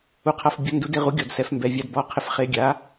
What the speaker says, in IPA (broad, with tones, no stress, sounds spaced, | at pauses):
u˧ qʰ a˧ f bʲ ɔ˨˥ n d u˨˥ d ɪ˧ ʁ u˨˥ ɡʲ ɔ˧ d s ɛ˨˥ f m b ɛ˧ vʲ a˧ d b ɔ˨˥ qʰ ɪ˧ f χ e˧ ɡʲ a˨˥